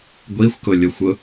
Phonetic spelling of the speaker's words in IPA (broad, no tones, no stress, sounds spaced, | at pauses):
ɡʷ i xʷ k ʊ lʲ o xʷ ʊ